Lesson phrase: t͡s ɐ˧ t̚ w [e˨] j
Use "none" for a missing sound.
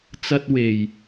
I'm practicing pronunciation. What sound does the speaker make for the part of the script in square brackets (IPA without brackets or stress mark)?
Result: e˨